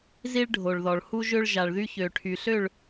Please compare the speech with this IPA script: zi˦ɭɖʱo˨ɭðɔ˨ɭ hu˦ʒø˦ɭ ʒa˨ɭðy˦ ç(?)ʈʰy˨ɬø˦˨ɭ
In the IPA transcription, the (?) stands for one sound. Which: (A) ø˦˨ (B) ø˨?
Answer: B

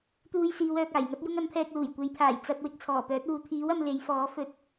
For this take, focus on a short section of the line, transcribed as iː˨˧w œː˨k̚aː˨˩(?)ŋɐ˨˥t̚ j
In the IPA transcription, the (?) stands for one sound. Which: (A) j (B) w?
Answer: A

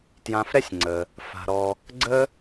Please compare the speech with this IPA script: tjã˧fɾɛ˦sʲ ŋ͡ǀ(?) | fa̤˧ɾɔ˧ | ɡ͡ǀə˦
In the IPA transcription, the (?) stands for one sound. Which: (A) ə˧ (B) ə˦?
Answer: A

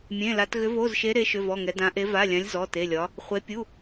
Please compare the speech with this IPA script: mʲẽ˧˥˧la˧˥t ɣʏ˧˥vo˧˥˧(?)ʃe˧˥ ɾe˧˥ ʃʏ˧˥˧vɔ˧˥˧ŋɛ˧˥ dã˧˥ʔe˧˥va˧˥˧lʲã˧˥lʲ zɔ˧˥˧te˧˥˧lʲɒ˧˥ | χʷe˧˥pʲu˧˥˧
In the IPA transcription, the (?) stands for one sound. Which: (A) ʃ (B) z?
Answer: B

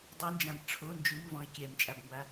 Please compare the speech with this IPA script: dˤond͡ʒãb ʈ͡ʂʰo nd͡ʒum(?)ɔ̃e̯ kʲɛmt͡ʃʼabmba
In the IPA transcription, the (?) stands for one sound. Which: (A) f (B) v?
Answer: B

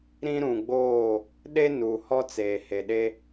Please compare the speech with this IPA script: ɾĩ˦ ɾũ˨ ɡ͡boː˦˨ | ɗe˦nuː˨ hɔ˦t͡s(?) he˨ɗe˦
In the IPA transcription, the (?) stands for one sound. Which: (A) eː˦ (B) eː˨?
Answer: B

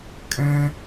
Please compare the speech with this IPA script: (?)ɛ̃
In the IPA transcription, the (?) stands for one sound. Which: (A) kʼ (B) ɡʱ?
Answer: A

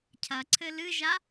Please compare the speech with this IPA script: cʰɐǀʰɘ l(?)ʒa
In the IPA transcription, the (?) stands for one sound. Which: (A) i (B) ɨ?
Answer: B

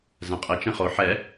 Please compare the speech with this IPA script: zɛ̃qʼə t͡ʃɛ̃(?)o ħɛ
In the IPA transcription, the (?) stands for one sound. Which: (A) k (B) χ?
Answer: B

